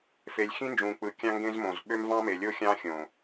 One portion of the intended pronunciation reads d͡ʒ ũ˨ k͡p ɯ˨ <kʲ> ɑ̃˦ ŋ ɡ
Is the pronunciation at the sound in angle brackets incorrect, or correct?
correct